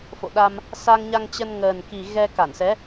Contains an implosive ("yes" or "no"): yes